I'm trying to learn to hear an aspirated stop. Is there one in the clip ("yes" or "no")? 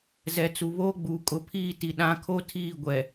yes